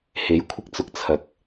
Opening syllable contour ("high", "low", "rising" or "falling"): rising